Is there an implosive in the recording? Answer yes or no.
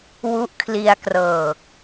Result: no